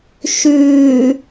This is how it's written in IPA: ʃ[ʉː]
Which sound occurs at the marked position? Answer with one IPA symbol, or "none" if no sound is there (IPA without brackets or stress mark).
ʉː